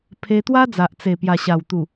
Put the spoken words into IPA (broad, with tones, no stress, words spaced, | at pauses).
pʰe˧t̪wa˦d͡za˨ʔ t͡se˨˩pja˨˩ ɕa˨˩w t̪u˨˩